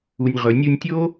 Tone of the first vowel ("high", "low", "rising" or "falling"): low